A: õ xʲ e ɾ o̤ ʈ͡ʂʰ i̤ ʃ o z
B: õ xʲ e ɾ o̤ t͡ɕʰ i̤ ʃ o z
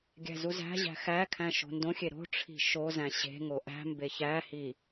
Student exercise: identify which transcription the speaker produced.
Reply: A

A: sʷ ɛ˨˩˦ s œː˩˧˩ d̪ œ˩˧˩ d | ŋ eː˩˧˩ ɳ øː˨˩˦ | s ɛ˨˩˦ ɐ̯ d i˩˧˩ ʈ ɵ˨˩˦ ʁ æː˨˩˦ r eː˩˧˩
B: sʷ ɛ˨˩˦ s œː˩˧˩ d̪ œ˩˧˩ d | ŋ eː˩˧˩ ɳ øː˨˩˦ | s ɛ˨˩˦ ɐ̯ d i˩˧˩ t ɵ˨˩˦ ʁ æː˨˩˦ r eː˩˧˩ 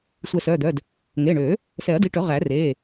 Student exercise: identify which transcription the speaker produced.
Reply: A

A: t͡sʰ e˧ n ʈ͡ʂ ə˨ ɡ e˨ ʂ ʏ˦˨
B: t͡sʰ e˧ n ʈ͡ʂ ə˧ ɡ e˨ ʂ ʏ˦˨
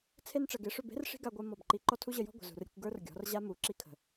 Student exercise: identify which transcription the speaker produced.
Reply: A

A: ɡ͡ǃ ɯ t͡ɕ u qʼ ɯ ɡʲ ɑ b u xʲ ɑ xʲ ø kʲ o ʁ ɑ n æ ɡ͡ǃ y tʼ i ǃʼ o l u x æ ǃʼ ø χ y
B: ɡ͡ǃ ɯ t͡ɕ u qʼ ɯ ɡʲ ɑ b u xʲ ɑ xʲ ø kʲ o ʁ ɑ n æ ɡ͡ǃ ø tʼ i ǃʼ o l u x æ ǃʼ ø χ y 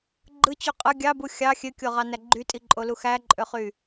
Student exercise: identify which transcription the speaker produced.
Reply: A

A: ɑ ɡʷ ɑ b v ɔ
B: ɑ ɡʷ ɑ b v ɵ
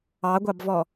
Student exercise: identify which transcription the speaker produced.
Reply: A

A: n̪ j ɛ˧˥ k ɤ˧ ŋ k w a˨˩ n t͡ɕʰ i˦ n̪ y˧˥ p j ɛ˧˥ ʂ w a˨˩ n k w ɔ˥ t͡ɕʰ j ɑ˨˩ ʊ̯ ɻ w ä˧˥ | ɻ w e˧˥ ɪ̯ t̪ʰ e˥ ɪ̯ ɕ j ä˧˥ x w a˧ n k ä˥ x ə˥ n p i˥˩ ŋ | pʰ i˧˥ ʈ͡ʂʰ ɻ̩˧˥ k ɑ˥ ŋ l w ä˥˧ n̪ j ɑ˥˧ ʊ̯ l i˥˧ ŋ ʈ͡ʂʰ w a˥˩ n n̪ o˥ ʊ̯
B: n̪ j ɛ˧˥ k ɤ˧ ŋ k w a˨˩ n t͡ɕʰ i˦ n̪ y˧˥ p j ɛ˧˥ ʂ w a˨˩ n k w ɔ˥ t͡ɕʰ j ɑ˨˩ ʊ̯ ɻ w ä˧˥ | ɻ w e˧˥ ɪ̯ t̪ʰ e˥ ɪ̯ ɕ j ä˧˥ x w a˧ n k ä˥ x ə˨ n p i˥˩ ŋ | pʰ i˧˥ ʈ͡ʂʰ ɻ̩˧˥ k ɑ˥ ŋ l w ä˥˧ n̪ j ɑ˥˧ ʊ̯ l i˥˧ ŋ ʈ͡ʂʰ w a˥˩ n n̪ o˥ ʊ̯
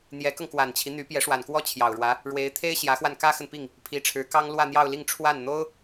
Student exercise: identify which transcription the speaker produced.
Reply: B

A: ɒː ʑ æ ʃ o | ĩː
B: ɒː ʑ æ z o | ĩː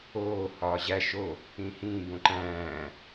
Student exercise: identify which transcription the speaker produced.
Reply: A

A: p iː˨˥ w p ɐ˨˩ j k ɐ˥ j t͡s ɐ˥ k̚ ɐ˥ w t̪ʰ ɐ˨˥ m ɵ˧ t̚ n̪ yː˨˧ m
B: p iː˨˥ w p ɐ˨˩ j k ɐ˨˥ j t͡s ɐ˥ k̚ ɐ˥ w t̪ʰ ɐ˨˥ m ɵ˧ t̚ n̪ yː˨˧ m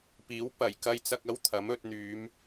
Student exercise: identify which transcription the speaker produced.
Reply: A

